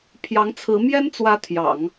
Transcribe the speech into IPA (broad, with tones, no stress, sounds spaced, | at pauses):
pʰ j ɑ˧˥ ŋ t͡sʰ ɹ̩˧˥ m j ɛ˥ n t͡s w ä˧˥ t̪ʰ j ɑ̰˨˩˦ ŋ